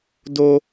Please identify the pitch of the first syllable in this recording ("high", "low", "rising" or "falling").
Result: high